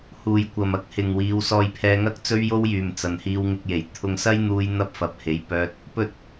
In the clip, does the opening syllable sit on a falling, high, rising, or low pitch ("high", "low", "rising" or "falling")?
low